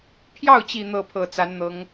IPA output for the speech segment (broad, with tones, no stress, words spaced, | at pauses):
pʰjɑ˥˩ʊ̯t͡ɕi˨˩ n̪ɤ˥˩pʰɤ˨˩t͡sa˧˥nn̪ɤ˧˥ŋ